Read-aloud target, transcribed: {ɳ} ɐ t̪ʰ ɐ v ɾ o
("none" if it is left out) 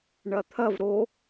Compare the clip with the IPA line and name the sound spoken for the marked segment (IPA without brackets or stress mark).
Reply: ɳ